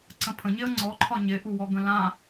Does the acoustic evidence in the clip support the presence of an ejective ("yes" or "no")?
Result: no